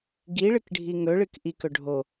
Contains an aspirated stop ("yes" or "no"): no